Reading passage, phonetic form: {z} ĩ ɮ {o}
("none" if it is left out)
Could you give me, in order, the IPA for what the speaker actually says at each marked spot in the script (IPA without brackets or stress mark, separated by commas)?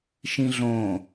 ʃ, õ